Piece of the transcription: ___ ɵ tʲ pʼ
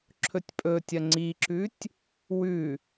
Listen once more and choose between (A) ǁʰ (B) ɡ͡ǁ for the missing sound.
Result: A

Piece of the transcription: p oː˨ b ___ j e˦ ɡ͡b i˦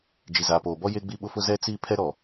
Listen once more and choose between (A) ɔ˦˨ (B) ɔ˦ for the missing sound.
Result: B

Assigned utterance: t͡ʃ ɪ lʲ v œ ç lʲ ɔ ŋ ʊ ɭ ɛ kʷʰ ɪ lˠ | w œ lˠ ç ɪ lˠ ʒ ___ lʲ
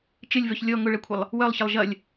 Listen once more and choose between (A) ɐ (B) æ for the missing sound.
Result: A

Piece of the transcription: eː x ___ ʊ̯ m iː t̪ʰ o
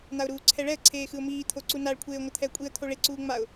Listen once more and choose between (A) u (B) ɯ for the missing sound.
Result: B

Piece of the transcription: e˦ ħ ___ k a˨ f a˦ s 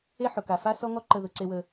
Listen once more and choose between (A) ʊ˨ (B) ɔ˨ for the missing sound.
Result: A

